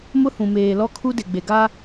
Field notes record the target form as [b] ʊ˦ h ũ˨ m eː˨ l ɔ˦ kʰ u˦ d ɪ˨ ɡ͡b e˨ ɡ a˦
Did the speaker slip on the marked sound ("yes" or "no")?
yes